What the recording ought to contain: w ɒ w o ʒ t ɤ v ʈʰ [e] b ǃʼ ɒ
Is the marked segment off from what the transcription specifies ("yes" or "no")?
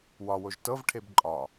no